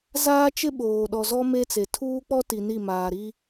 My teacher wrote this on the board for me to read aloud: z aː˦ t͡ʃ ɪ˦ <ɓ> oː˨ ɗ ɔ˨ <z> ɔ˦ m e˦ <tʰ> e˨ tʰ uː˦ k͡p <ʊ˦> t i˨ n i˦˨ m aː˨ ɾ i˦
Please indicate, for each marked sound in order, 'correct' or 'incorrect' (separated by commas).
correct, correct, incorrect, incorrect